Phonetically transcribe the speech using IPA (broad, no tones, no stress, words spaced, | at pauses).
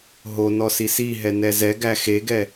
ɦonɔsi si ɦɛnɛzɛɡæ xeɡɛ